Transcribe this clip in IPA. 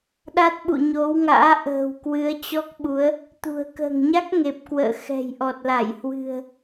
ɗ a˦˥ t̚ ɓ ṵ˧˨ ɲ o˨˦ w ŋ a̰ː˧˥ ʔ ə̤ː˨˩ w k w ɨ˨˦ ə̯ t͡ɕ ɔ˦˥ k̚ ɓ u˨˦ ə̯ | t̪ ṳ˨˩ ə̯ k ə̤ː˨˩ ŋ ɲ a˦˥ k̚ ŋ e˨˩ p̚ k w ə̰ː˧˨ x ɛ̤˨˩ j ʔ ɔ˨˩ t̚ l a˧˩ j h w ɨ̤˨˩ ə̯

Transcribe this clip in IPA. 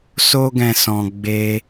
s o˦ ɡ ɛ̃˧ s ɔ̃˧ ɡ͡b e˧

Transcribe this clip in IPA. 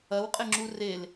ɐ w qʼ ɪ ŋ͡ǁ u r e l

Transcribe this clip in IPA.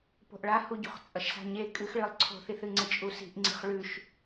p o̤ ʔ ɭ a h u ɟ ṳ χ t͡sʼ ɐ ʃ s a̤ ɲ e kʼ ɨ x ɭ ɨ lˠ ǀʰ o̤ θ i θ ɨ ŋ͡ǀ ɨ t͡ʃʼ u s i̤ ʔ ŋ͡ǀ i̤ χ ɭ ʉ ʃ

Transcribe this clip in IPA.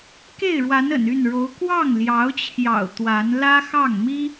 k e˥˩ ɪ̯ ɻ w a˧˥ n ə̰˨˩ n y˥˩ n ɻ o˧˥ ʊ̯ k w ɑ˥˩ ŋ l j ɑ˧˥ ʊ̯ t͡ɕʰ j ɑ̰˨˩ ʊ̯ t̪ w a˧˥ n l ä˥ x ɑ˥˩ ŋ m i˥

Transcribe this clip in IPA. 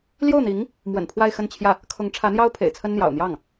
l j o˥˩ ʊ̯ n̪ i˧˥ ŋ | m w ə̰˨˩ n pʰ w a˥˧ ɪ̯ x ə˥˧ n t͡ɕʰ j ä˥˩ | kʰ ʊ˧˥ ŋ ʈ͡ʂʰ ä˧˥ n̪ j ɑ˥ ʊ̯ pʰ ḛ˨˩ ɪ̯ t͡sʰ ə˥ n n̪ j ɑ̰˨˩ ʊ̯ n̪ j ɑ˥˩ ŋ

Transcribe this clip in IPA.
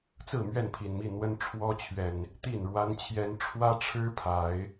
t͡s ɹ̩˥˨ m ɥ ɛ˥˨ n pʰ i˨˩ n m i˥˨ n̪ w ə˦ n ʈ͡ʂʰ w ɔ˦ t͡ɕʰ ɥ ɛ˨˩ n | t̪ i˥˨ n ɻ w a˦ n t͡ɕʰ j ɛ˦ n ʈ͡ʂʰ w ä˦ ʈ͡ʂʰ ɻ̩˦ pʰ a˨˦ ɪ̯

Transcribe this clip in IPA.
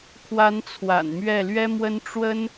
kʰ w a˧˥ n t͡sʰ w a̰˨˩ n m ɥ ɛ˥˩ l ɥ ɛ˥ m w ə˥ n ʈ͡ʂ w ə˥ n

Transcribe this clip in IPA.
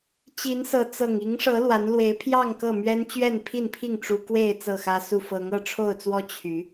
t͡ɕ i˨˦ n s ɤ˨˦ t͡s ɤ˨˩ ŋ i˨˦ ŋ ʂ ɤ˨˦ l w a˨˦ n l w e˨˦ ɪ̯ pʰ j ɑ˥˨ ŋ k ɤ˥˨ m ɥ ɛ˦ n t͡ɕ ɥ ɛ˥˨ n pʰ i˥˨ n pʰ i˥˨ ŋ ʈ͡ʂ u˦ k w e˥˨ ɪ̯ t͡s ɤ˥˨ x ä˦ s u˥˨ f ɤ˨˦ ŋ ɤ˥˨ ʈ͡ʂʰ o˥˨ ʊ̯ t͡s w ɔ˦ t͡ɕʰ y˨˦

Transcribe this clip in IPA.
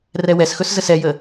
r ɛ w ɛ s x ɵ s z ə s ɛ j ə

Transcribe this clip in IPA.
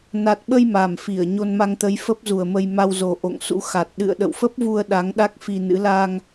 n a˨˩ t̚ ɓ ə˧ j m a˨˩ m f i˧˩ ə̯ ɲ o˧ n m a˧ ŋ t̪ ə˨˦ j f ə˦˥ p̚ z u˨˩ ə̯ m ə˧ j m a˧ w z o˨˩ ʔ o̰˧˨ ŋ s ṵ˧˥ x a˨˩ t̚ ɗ ɨ̰˧˨ ə̯ ɗ ə̰˧˨ w f ə˦˥ p̚ v u˧ ə̯ ɗ a˨˦ ŋ ɗ a˦˥ k̚ f i˧ n ɨ̰˧˥ l a˧ ŋ

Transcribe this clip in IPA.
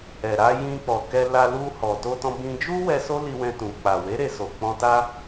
ɛ˨ ɾ a˧ j ĩ˧ k͡p ɔ˨ k ɛ˧ l a˧ l u˧ h ɔ˨ t o˧ t ɔ̃˧ b ĩ˧ d͡ʒ u˦ w ɛ˧ s o˦ l i˧ w ɛ̃˧ t ũ˨ k͡p a˨ w e˨˦ ɾ e˧ s o˨ k͡p ɔ̃˧ t a˦

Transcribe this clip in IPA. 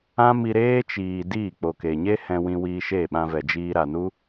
ã˦ m i˧ ɾ eː˦ t͡ʃ iː˨ d iː˦˨ k͡p o˨ k e˨ ɲ e˦ h ɛ̃˧ w ĩ˧ w iː˧ ʃ e˦˨ ɓ ã˧ v ɛ˨ d͡ʒ iː˧ ɾ a˨ n u˦

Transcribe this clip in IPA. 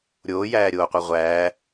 ɾʲ oː j æː ɾʲ oː qʷ i ʁʷ æː

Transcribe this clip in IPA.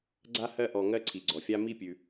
ɡ͡ǀ a˥ h ɜ˥ ʔ ɔ˨ ŋ ɜ˦ ǀʰ i˩ ɡ͡ǀ ɔ˩ fʲ a˦ m i˦ pʲ ʉ˩

